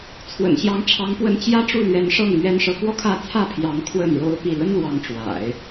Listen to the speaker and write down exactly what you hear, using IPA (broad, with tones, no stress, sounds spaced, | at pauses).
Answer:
t͡sʰ w ə̰˨˩ n ɕ j ɑ˧˥ ŋ ʈ͡ʂʰ ɑ˧˥ ŋ p w ə˧˥ n t͡ɕ j ä˥ ʈ͡ʂ u˥˩ l ɥ ɛ˧˥ n ʂ ɤ˥˩ ŋ m ɥ ɛ˥ n ʂ ɤ˧˥ k w ɔ˥˧ kʰ ä˥˧ t͡sʰ ä˥˩ pʰ j ɑ˧˥ ŋ kʰ w ə˥˩ n ɻ o˥ ʊ̯ p i˥˩ l ə˥ n l w ɑ˧˥ ŋ ʈ͡ʂ w a̰˨˩˦ ɪ̯